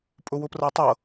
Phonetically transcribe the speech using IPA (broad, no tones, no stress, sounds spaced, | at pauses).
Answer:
pʼ ʊ w ʊ p r ɤ tˤ ɤ